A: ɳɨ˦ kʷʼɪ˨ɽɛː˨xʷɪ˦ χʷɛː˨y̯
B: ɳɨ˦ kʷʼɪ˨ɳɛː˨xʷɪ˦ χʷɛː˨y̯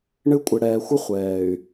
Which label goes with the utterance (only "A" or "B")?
A